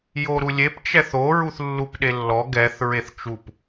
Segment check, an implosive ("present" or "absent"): present